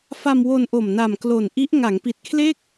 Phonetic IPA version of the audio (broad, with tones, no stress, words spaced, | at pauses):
fa˧mwo˧nʔo˨˩m na˨˩mklo˨˩nʔi˦˥ʔ ŋa˩˦ŋpi˨˩t̚kʰle˥˩k̚